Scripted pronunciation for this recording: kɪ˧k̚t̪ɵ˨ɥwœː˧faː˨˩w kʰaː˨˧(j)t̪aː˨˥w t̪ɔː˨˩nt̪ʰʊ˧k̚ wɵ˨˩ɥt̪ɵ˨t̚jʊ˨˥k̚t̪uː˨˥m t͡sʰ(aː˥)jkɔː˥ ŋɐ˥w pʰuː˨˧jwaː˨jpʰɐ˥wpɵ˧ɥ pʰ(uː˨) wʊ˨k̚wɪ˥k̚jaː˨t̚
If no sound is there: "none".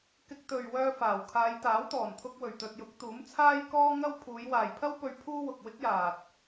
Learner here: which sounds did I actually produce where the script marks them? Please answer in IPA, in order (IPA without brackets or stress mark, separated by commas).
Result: j, aː˥, uː˥